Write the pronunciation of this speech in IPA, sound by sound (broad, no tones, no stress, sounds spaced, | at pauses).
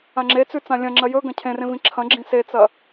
ã ŋ͡ǁ e t͡s ʉ t͡s ã lʲ ɐ̃ ŋ͡ǁ ɐ j ɵ ɡ ɐ̃ cʰ ẽ r ẽ v ĩ ǁʰ ɐ̃ ɡ͡ǁ ĩ s e t͡s ɐ